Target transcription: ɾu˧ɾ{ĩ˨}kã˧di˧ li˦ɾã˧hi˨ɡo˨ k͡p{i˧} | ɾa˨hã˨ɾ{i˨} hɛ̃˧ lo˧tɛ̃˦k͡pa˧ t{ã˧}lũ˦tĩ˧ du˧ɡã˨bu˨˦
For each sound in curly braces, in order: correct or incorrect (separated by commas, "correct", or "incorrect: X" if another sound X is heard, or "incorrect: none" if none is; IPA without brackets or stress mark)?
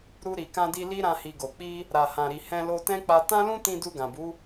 incorrect: i˨, correct, correct, incorrect: ã˦